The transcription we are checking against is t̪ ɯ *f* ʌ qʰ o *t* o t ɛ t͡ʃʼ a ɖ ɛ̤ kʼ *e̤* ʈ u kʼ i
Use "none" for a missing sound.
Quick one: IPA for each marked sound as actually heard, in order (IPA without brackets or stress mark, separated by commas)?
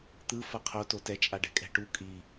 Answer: f, t, ɛ̤